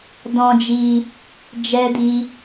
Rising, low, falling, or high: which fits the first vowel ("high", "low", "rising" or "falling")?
high